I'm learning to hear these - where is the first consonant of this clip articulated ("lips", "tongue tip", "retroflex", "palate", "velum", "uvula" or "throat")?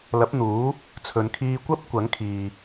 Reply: tongue tip